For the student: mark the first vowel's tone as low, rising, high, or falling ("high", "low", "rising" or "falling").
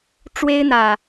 high